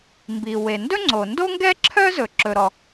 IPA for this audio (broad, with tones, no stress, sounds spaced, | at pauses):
m b i˩ w e˩ n d ɵ˥ ŋ͡ǀ o˩ n d o˥ ŋ ɡ ɛ˥ ǁʰ œ˥ z ɵ˩ ǁ ɵ˩ ɾ ɔ˩